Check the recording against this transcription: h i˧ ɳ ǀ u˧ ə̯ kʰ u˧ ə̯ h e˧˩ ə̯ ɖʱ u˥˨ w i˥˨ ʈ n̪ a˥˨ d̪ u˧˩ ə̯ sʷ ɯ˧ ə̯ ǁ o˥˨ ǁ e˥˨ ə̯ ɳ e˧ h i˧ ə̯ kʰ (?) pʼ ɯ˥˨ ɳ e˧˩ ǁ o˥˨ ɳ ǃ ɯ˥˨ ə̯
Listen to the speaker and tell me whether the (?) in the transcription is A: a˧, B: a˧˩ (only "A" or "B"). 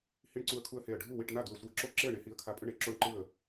A